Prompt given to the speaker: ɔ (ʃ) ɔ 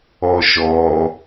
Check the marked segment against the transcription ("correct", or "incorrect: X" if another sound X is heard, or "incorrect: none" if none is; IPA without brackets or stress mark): correct